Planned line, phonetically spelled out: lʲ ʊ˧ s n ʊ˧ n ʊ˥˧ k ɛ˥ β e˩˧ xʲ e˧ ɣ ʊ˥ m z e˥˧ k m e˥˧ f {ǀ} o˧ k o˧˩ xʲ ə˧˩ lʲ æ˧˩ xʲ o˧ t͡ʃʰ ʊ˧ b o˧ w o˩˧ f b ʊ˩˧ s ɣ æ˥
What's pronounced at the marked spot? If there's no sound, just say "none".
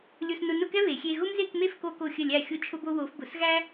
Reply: k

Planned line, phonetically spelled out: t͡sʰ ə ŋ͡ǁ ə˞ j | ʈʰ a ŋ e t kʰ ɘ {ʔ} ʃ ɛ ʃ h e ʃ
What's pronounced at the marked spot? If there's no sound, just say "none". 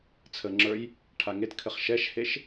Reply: χ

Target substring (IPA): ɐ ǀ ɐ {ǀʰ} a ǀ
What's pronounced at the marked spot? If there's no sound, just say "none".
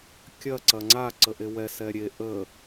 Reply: ŋ͡ǀ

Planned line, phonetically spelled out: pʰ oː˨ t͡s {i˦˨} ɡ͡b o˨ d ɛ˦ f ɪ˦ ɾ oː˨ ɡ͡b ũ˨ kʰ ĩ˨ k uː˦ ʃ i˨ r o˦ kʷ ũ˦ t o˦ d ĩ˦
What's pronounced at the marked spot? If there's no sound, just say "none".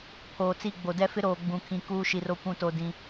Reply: i˦˨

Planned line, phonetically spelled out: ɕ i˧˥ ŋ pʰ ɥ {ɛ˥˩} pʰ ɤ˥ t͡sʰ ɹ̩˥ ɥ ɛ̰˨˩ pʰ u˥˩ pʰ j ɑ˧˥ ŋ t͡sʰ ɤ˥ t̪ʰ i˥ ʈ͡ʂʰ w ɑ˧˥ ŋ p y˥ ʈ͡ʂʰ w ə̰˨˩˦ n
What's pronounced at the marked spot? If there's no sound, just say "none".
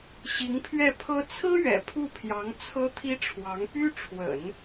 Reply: ɛ˥˩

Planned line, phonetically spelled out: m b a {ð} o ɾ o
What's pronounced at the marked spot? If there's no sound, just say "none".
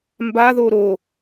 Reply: ð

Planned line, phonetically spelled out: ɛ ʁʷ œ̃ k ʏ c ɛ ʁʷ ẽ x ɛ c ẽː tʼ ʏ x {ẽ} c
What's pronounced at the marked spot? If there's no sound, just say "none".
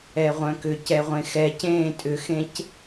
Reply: ẽ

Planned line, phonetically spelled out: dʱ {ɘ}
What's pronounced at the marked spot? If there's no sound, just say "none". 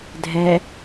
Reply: ɛ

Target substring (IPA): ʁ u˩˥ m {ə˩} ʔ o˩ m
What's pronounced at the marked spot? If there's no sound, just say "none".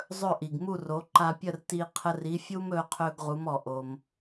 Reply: ɔ˩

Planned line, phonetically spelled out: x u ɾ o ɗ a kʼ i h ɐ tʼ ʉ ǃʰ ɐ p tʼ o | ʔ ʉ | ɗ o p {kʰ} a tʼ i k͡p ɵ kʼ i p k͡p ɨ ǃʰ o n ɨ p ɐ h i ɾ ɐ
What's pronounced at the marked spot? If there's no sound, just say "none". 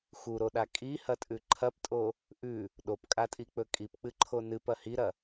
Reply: kʼ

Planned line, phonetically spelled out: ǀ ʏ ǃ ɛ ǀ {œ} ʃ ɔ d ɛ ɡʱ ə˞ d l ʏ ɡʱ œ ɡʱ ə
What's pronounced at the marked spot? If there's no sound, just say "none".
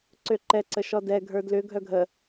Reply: ə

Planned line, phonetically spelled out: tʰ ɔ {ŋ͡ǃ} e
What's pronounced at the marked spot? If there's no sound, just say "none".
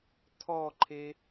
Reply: ǃʰ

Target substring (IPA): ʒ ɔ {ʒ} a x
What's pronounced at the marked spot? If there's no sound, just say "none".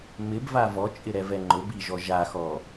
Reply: ʒ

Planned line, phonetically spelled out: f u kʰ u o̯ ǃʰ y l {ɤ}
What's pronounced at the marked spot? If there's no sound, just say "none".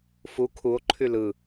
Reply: ɯ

